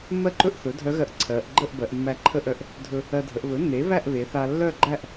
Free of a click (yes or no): no